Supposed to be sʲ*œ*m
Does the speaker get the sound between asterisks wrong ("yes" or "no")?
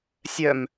no